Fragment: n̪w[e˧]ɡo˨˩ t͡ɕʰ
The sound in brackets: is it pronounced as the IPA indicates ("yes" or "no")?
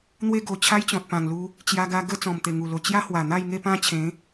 no